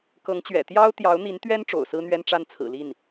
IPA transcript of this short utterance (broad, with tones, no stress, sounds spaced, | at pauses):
k ɤ˧˥ ŋ t͡ɕ ɥ ɛ̰˨˩ t̪ j ɑ˥ ʊ̯ t̪ j ɑ˧˥ ʊ̯ n̪ i˧˥ n t̪ ɥ ɛ˥ n ʈ͡ʂ o̰˨˩ ʊ̯ s ɹ̩˥ n̪ ɥ ɛ˥ n ʈ͡ʂ a˥˩ n t͡sʰ ɹ̩˨˩ l i˥˩ n